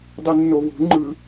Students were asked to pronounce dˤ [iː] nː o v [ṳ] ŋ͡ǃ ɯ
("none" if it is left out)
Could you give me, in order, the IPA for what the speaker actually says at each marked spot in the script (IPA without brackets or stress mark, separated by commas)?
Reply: i, ṳ